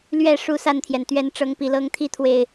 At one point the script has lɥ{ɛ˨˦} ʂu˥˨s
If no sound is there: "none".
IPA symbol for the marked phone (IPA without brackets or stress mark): ɛ˥˨